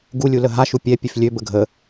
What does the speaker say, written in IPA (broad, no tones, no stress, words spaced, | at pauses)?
ɡulʲulə ɦaʃu pʲɛpʲøf lʲøbə ɡʱə